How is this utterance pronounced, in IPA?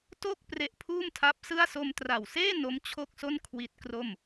to˥˩k̚ pre˦˥ʔpʰuː˥˩mtʰa˦˥p̚sɯ˥˩a̯ so˧mtra˨˩wseː˥˩ no˦˥mt͡ɕʰo˥˩k̚so˥˩n kʰwi˦˥t̚kro˥˩m

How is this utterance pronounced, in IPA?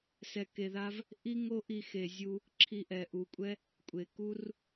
sɛ˧ke˧ða˦v | ʔi˦ŋo˦ ʔi˧ xe˨zʲu˧ | ǁʰi˧ʔɛ˨ʔu˨kʷʼɛ˦ | kʷʼe˨ku˦r

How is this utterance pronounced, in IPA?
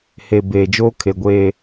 he˨ beː˨d͡ʒoː˦kʰe˨ɡʷeː˨

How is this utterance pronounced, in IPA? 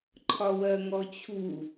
ǃʰɒwɜŋɔt͡ɕʰu

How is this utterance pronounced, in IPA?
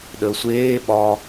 ɗəːsʷeː ɓɒ

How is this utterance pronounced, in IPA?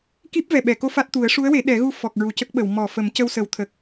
ki˦˥p̚vɛ˨˩ ɓɛ˨˩˨ko˧ fa˦˥t̚t̪u˨˩˦ə̯ ʂu˧˥ə̯we˨˩˦ ɗɛ˨˩˦ɣu˧ fɔ˨˩k̚ ɹu˨˩cə˦˥k̚ɓə˨˩˨w mɔ˨˩˨fə˨˩˦mcə˧wsə˨˩˦w t̪ʰə˨˩k̚

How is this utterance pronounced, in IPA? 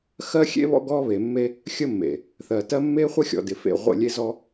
xɜ˦xʲḛ˦βɔ̰˦ ɡɔ˦ βe˨mːe˦ | xʲə˦mːḛ˨ | θɜ˨tɜ˦ mːe˦χʷə˦ xʲɔ̰˨dɪ˨ fḛ˦˨ʁʷə̰˦˨ lʲe˦zɔ˦

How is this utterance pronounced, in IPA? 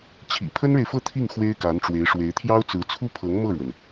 t͡ɕʰḭ˨˩ pʰə˥nɻe˨ɪ̯fɤ˥˧ t̪ʰi˥˩ŋ xwe˥ɪ̯ka˧˥nʈ͡ʂwe˧˥ɪ̯ ʂwe˧˥ɪ̯t̪ʰjɑ˥ʊ̯t͡sɹ̩˧˥ t͡sʰu˥pʰɤ˧˥ŋ mɤ˥˩ɻwə˩n

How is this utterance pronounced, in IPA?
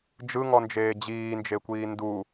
d͡ʒɯŋɔnd͡ʒeː d͡ʑiːnd͡ʒekʷiː ndu

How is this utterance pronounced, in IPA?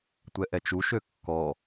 tʷɛʔɛt͡ʃuʃø kːɔ

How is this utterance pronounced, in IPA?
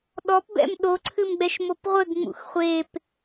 ɗɔpbɛ̰m ɗoǀʰɨmɡ͡bɛʃmop ʁʷɘɡŋ͡mṵx χʷep

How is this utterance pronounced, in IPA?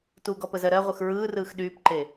tuɡɔpəzɜ ɾɜʁʷɯx ɹɯːrɯːx ɗyːpǃe

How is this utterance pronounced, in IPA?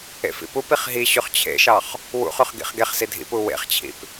ḛfḭpupiχ ɦiɕʉχ t͡ɕʰḛʃɑχ | wṵχʉχ ɡḭχɡeχsi dʱḭpu wḛχt͡ɕʰḭp

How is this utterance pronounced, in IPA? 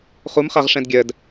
χumχaʁʂɛ̃d ɡʲɜd

